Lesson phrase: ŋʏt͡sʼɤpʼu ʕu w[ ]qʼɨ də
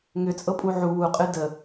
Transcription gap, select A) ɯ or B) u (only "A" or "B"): B